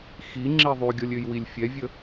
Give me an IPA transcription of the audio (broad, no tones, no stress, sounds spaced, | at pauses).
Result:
x i ŋ͡ǁ i ðˤ y ɡʲ ɔ lʲ ø j w i lʲ fʲ ɛ vʲ ə